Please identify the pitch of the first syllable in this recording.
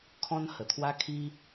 high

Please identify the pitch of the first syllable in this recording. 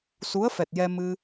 rising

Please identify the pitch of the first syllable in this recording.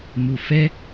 low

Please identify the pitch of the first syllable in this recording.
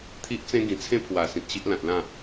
high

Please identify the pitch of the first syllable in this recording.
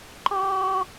high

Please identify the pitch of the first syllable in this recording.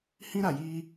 high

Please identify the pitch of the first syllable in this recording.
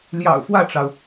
low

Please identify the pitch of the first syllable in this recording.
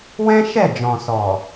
high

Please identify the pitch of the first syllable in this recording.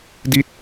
falling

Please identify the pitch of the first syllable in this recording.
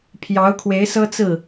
rising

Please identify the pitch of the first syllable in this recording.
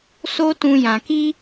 high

